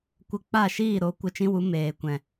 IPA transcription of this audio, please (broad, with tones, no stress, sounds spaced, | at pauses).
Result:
kʷ ə˧ k͡p a˦˨ ʃ iː˦˨ ɾ o˨˦ kʷ ə˧ t͡ʃ ĩ˦ w u˨˦ m eː˨ kʷ ɛ̃˨